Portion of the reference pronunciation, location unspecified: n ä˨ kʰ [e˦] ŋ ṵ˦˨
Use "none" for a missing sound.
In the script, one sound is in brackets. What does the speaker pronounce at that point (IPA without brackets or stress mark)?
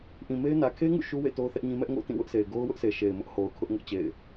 e˦